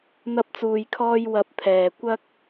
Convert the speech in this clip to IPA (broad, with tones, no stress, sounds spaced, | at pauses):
n̪ ɐ˥ p̚ t͡s uː˧ j kʰ ɔː˥ j w ɐ˧ p̚ t̪ʰ ɛː˨ kʷ ɐ˥ k̚